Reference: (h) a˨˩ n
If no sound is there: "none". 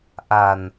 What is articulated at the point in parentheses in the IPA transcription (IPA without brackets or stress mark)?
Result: ʔ